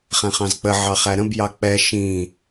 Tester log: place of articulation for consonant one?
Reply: uvular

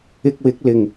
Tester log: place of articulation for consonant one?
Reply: velar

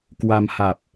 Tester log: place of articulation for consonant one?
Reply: velar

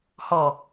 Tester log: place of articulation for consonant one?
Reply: glottal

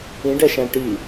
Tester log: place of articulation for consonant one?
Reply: retroflex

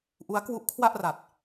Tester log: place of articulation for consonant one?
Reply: glottal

